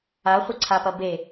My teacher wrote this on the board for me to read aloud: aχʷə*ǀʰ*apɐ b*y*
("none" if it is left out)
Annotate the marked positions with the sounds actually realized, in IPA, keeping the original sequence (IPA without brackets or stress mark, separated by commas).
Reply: ǀʰ, e